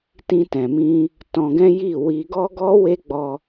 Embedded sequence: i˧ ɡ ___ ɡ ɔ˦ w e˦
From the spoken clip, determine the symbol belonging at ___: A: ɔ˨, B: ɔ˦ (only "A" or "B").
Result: B